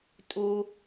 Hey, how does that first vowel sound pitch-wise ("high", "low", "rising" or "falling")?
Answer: low